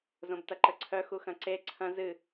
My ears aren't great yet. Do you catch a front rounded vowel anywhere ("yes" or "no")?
yes